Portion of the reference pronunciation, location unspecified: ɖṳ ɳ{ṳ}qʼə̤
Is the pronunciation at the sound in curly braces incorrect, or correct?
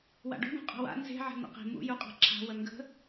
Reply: incorrect